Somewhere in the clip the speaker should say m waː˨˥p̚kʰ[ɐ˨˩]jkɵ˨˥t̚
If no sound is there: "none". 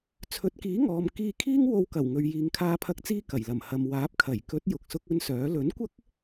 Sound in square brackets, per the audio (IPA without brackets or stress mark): ɐ˨˩